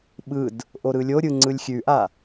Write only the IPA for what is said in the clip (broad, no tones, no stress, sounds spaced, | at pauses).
ɓ ɯ d | ʔ o ɾ ɯ lʲ o ɾʲ ɯ ŋ͡ǀ ɯ lʲ xʲ ʉ ʔ a